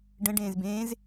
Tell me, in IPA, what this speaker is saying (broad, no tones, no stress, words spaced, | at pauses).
ɖə̃ ɖẽːzbẽːz